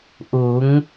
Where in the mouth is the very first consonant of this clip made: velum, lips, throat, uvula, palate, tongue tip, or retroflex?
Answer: throat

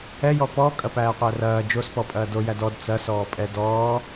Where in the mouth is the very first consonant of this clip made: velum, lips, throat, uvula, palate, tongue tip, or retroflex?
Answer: palate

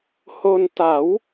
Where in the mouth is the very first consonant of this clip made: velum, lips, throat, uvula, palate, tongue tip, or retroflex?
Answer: throat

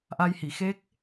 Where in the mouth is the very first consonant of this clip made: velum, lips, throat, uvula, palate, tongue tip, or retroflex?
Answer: throat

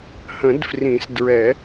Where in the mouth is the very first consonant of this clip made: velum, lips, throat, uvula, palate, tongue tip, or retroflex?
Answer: throat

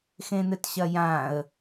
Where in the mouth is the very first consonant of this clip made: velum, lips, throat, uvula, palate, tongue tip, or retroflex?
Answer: velum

